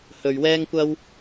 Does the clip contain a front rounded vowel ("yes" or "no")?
no